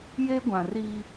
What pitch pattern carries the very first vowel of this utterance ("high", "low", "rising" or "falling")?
high